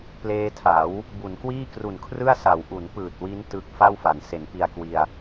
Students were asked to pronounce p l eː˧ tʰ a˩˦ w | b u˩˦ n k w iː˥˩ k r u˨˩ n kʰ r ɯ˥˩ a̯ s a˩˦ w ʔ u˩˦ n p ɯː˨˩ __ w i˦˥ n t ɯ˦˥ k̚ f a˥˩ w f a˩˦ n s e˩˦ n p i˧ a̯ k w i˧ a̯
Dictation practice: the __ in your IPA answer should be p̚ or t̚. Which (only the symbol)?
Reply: t̚